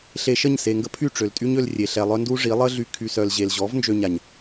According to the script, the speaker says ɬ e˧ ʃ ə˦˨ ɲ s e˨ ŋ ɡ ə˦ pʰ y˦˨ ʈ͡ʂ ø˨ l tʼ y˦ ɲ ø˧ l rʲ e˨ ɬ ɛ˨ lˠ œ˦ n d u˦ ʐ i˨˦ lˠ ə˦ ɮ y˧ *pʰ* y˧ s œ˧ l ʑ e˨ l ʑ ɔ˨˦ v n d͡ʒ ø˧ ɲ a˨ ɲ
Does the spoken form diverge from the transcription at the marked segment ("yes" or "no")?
yes